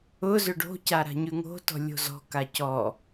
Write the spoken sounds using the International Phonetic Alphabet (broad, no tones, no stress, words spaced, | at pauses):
ʊ zʏɖo̤ca ɾa̤ɲʉŋo̤tɔ̤ lʲo̤zɔ̤ka cɔ